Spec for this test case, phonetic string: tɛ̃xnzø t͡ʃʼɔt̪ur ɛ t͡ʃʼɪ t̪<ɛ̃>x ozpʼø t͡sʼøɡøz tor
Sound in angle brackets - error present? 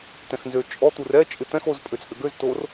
no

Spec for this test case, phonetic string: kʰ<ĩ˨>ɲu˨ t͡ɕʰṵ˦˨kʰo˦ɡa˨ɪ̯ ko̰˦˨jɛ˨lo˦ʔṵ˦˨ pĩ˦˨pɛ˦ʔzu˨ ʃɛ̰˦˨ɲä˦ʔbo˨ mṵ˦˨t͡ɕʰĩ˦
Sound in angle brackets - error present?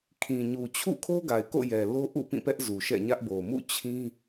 no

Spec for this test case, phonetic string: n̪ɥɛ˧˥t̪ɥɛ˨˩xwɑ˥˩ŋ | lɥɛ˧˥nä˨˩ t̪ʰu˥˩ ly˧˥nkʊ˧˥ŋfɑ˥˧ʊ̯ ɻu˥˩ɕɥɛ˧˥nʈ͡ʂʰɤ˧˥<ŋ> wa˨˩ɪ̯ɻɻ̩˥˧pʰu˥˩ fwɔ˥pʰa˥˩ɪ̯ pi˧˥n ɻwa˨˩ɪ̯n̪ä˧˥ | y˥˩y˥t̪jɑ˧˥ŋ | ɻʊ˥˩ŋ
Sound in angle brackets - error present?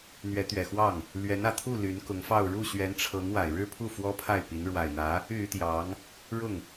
no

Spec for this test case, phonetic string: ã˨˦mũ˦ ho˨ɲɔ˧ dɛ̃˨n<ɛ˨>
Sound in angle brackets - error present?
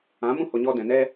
yes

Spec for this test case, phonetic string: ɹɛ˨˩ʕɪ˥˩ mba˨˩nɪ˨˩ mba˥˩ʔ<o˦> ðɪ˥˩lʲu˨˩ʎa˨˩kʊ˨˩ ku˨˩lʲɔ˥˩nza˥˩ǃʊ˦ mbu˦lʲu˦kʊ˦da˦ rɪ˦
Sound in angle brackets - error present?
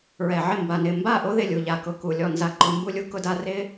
no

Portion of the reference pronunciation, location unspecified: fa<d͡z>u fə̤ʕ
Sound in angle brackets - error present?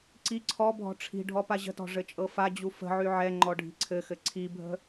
yes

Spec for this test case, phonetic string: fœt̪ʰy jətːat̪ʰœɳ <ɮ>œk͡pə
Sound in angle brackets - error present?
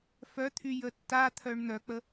yes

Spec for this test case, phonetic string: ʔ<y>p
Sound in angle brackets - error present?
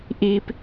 yes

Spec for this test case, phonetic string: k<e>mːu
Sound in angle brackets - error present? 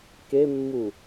no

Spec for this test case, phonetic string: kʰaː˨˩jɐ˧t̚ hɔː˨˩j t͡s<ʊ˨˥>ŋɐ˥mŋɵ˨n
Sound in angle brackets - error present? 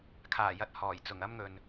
yes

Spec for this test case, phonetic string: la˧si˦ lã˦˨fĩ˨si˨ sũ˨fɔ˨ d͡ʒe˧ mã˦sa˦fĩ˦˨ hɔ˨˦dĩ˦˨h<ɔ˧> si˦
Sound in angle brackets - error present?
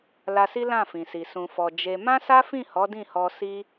no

